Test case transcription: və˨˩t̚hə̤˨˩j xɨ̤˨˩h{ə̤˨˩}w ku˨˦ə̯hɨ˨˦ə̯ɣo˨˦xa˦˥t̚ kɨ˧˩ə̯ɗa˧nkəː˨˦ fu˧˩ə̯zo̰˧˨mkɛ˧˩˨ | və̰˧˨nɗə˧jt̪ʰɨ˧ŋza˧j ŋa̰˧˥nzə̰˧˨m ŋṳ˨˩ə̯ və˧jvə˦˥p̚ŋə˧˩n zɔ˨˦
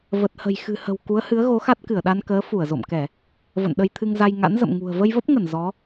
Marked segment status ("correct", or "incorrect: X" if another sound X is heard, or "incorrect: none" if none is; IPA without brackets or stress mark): correct